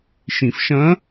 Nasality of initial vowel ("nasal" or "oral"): nasal